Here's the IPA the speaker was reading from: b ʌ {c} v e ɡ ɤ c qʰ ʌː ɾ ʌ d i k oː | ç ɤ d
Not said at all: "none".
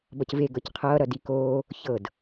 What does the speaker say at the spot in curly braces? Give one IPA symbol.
c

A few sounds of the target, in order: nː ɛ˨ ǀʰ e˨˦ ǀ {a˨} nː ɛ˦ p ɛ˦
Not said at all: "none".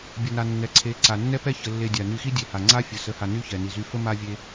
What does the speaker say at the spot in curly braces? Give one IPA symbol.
a˨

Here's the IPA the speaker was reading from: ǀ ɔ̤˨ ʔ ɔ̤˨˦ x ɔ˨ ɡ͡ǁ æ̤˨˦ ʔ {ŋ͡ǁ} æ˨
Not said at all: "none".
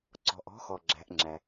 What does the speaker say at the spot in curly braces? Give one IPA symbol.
ŋ͡ǁ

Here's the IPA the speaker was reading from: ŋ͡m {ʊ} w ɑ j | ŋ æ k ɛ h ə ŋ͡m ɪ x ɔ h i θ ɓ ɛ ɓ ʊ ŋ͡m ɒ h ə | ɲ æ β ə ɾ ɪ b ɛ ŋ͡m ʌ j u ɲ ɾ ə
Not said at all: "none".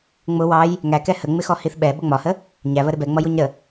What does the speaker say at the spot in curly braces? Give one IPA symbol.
ʊ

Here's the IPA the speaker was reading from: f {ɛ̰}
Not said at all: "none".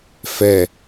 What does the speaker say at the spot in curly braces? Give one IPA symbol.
ɛ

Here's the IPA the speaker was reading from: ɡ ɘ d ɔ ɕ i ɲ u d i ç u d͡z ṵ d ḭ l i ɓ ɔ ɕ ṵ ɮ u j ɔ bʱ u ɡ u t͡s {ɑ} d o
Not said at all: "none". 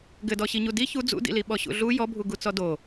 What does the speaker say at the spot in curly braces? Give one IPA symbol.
ɔ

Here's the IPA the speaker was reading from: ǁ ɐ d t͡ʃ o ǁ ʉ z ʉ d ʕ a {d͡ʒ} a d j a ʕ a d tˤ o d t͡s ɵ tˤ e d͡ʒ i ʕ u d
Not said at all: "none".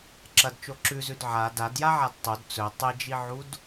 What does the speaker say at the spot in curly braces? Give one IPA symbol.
d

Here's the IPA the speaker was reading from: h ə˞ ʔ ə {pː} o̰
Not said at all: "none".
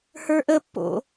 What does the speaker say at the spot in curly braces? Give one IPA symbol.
pː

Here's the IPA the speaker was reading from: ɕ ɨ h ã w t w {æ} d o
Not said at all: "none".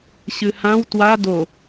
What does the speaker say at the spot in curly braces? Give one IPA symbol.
a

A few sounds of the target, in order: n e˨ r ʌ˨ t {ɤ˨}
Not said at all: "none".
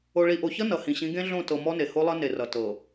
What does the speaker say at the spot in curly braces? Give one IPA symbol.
ɤ˨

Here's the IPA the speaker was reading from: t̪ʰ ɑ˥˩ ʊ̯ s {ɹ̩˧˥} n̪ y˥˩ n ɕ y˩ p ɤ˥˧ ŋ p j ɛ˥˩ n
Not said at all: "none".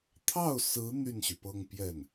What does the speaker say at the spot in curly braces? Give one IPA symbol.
ɹ̩˧˥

